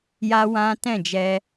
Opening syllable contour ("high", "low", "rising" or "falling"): high